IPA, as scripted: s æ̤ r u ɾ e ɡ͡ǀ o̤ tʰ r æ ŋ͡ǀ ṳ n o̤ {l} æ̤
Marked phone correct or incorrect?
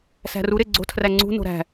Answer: incorrect